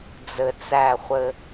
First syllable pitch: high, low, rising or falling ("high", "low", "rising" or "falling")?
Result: low